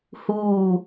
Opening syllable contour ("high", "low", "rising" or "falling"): falling